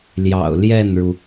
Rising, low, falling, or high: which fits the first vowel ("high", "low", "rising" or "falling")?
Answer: low